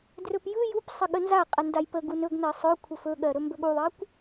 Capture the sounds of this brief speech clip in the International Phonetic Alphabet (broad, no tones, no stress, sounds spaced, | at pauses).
d r ɵ p j ɯ j u p sˤ ə ɠ ə n z a qʼ ə n d a j p ə ɡ u n ɵ ɡ n ɜ sˤ ɵ kʷʰ ə f ɵ ɠ ɜ ɾ ɵ m b ɵ ɠ u ðˤ ɜ kʷ